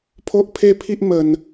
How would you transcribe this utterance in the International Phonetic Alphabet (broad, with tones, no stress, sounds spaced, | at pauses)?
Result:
pʰ o˦ ʔ pʰ e˦ pʰ i˦ ʔ m ə˨˩ n